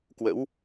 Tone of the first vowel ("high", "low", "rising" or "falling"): rising